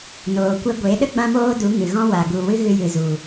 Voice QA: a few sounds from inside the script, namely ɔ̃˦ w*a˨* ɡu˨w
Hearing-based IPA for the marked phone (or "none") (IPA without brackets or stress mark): a˨